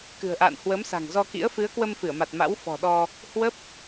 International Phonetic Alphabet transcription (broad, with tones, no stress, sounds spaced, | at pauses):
k ɨ̤˨˩ ə̯ ʔ a̰ː˧˨ n h w ə˨˦ m s a̤˨˩ ŋ z ɔ˧ k ḭ˧˥ ə̯ f ɨ˨˦ ə̯ k w ə˧ m f ɨ˧˩ ə̯ m a˨˩ t̚ m a̰˧˥ w f ɔ̤˨˩ ɗ ɔ˧ | h w ə˦˥ p̚